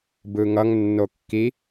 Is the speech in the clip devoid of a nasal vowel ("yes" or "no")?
yes